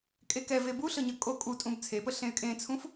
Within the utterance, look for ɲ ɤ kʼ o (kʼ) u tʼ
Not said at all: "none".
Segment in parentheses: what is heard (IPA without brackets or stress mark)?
kʼ